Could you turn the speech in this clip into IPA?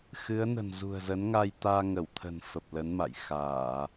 x ɨ˨˦ ə̯ n ə̤˨˩ n z ṳ˨˩ ə̯ z ə˨˦ n ŋ a˧ j t̪ aː˧ ŋ ə˧˩ w t̪ʰ ə̤˨˩ n f ə˨˩ p̚ l ə˨˦ n m a̰˧˨ j x aː˧˩˨

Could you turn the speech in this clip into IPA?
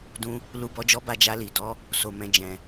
d ũ˧ | l u˨ b ɔ˨ d͡ʒ ɔ˨˦ b a˧ d͡ʒ a˧ l i˨ d ɔ˨˦ | s o˨ m ɛ̃˨ d͡ʒ ɛ̃˨

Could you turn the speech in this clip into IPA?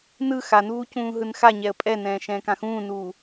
n ɯ x a n uː c ũː ɦ ɯ n x a ɲ ɛ ə̯ pʼ ɛ n ɛ̃ː ʃ ɛ̃ː k ã x ũː n uː

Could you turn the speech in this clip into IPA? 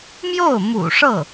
m j o˥˩ ʊ̯ m ṵ˨˩ ʂ ɤ˥˩

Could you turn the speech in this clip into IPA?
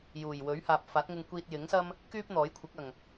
j uː˨˩ j w ɵ˨˥ ɥ h aː˨ p̚ f aː˨˥ t̚ ŋ ɪ˧ ŋ kʷ iː˧ t̚ j ɪ˨˥ ŋ s ɐ˥ m | k yː˥ p̚ n̪ ɔː˨˥ j kʷʰ ɪ˨˥ k̚ ɐ˨˩ ŋ

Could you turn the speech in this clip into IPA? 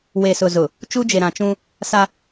w e˨ s ʊ˨ z ʊ˨ | t͡ʃ u˦ d͡ʒ e˨ ɾ ã˨ t͡ʃ ũ˦ | s a˦

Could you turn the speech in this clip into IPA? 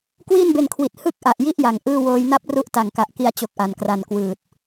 k w iː˥˩ n b e˧ n kʰ w i˨˩ t̚ h ɯ˥˩ k̚ ʔ a˨˩ ʔ j i˦˥ ʔ j a˨˩ ŋ ʔ ɯː˥˩ w oː˧ j n a˥˩ p̚ r u˦˥ ʔ t a˨˩ ŋ k a˨˩ ʔ k i˧ a̯ t͡ɕ o˦˥ k̚ ʔ a˨˩ n k r a˨˩ n k w ɯː˨˩ t̚

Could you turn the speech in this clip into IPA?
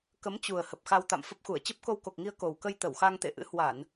k ə˨˦ m t͡ɕ u˨˩ ə̯ h ə˨˩ p̚ x a˧ w t̪ a̰˧˨ m f ə˦˥ p̚ x u˧˩ ə̯ t͡ɕ ə˦˥ p̚ k o˧ w k o˨˩ k̚ ŋ i˧ ə̯ k o˨˩ w k ə˧ j t̪ ə˧˩ w x a˧ ŋ t̪ ḛ˧˨ ʔ ɨ̰˧˥ h w a˧˩˨ n

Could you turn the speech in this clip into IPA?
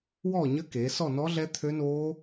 w ɔː˥˧ ɲ ə˦˥ k eː˩˧ s ɔ˥˧ n ɔː˦˥ ɮ ɛ˦˥ t̪ʰ ø˦˥ n oː˦˥

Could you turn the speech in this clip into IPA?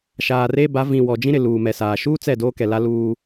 ʃ aː˨ r eː˦ b a˨˦ v ĩ˨ w ɔ˨ d͡ʒ ĩ˦ ɾ ɪ˨ l uː˨ m ɛ˨ s aː˨ ʃ uː˦ t͡s ɛ˦˨ d oː˦ k ɛ˨ l a˦ l uː˦

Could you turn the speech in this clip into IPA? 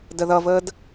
d ə ð ʌ v əː d

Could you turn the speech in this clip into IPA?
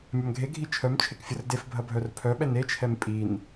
mʲ ɐ m ɡʱ e ɡʱ i t͡ʃʰ œ m t͡ʃʰ e k fʲ ə r d e f bʱ ɐ bʱ œ r pʰ œ ɓ ɛ n e t͡ʃʰ ɛ m pʼ i n

